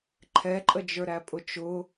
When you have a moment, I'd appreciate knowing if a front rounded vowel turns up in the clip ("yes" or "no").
no